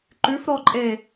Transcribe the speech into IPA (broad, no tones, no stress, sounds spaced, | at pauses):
ǃ ʉ f ɾ ɔ ǃʼ e